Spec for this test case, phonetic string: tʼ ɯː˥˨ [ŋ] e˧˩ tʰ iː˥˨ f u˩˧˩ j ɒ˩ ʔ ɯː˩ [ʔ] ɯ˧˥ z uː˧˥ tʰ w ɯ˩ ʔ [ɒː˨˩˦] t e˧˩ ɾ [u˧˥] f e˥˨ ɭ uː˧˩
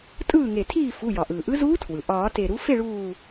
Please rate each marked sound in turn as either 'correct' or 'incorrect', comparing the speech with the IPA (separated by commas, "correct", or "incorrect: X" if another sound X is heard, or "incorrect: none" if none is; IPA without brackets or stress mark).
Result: correct, correct, correct, correct